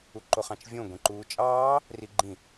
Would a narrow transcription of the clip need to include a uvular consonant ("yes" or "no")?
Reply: yes